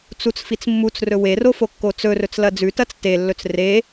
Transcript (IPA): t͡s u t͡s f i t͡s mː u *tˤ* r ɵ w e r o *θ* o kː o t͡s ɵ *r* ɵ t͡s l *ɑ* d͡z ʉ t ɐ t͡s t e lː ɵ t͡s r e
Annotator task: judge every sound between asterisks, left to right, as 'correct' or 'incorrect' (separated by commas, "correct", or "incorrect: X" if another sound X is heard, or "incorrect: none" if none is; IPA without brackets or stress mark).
incorrect: t͡s, incorrect: f, correct, incorrect: ɐ